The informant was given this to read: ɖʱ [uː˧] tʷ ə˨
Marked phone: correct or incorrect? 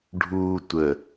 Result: correct